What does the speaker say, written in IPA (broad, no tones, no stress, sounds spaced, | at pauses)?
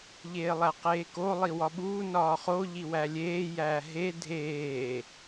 ʎ eː lˠ æ q eː k o lˠ i w ɒ ɓ uː n ɒː χ o ʎ i w æ lʲ eː j æː ɦ e dʱ eː